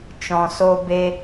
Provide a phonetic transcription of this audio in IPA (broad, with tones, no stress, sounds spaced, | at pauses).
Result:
t͡ʃ ɔ̃˨ s o˧ b e˧